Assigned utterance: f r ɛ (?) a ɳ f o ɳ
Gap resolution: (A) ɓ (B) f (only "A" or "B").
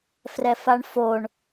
B